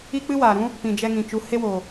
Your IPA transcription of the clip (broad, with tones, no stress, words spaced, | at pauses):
i˦k͡pɨ˦waː˨ɾũ˦ | pĩ˨d͡ʒɛ˧ŋĩ˨ t͡ʃu˨˦he˦wo˨